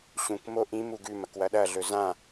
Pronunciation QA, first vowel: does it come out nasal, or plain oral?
nasal